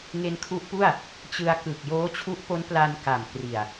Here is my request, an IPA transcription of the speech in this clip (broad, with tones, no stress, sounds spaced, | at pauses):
ŋ e˧ n kʰ u˦˥ ʔ p u˥˩ a̯ | t͡ɕ ɯ˧ a̯ k ɯ˨˩ k̚ j oː˦˥ t͡ɕʰ u˦˥ ʔ p o˦˥ n p l a˧ n k a˨˩ m k r i˨˩ a̯